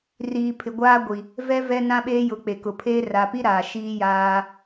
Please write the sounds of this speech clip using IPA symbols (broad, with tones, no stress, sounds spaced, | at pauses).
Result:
r iː˨ pʰ ɪ˨ ɡʷ aː˦ ɡʷ i˨ | v ɛ˦ v ɛ˦ n ã˦ ɓ eː˦ j ʊ˨˦ k͡p e˨ k ʊ˨ pʰ eː˦ r a˨ p i˦ ɾ aː˨ ʃ iː˦ j aː˦